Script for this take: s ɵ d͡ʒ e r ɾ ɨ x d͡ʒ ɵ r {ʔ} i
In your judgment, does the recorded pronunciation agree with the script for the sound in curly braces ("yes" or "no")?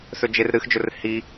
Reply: no